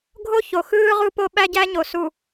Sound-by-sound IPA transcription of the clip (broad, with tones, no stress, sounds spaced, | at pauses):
ɡʱ o˦ ç o˨ x ɯː˦ ʁ u˦ p o˦ ɓ æ˦ ɟ æ˦ ɲ o˨ s u˨